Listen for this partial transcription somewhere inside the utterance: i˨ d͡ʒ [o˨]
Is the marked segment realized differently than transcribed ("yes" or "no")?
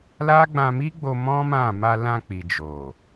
no